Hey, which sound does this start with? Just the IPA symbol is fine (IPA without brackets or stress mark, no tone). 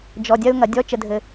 d͡ʒ